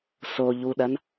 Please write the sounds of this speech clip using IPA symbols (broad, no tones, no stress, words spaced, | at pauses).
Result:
soʎuɗɐn